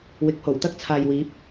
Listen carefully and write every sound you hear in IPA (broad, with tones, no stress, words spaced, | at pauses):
wɪ˨˥k̚ho˨˩w t̪ɐ˥k̚t͡sʰaː˨jwiː˨˥p̚